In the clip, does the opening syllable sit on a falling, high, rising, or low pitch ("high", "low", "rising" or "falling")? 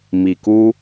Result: low